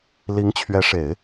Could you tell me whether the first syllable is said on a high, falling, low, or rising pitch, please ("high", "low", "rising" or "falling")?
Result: rising